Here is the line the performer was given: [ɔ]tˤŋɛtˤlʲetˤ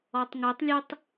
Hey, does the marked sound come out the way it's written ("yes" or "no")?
yes